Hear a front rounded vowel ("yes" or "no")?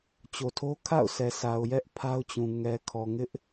no